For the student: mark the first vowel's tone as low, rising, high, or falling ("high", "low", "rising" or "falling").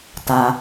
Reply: low